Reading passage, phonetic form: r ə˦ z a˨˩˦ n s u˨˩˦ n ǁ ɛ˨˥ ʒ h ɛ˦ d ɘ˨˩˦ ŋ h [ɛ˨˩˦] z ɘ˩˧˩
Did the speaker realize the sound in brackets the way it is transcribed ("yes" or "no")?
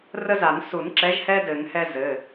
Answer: no